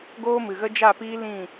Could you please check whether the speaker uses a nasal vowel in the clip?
yes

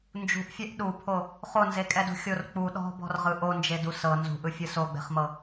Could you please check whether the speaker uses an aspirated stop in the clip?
yes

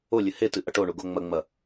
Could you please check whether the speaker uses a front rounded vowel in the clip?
no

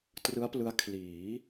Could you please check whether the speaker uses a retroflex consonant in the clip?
no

